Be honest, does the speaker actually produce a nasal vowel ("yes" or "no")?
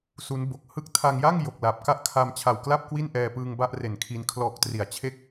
no